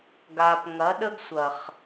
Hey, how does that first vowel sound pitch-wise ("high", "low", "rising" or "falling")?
low